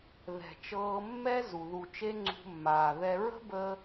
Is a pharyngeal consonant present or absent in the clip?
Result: absent